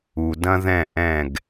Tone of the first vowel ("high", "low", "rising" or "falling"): low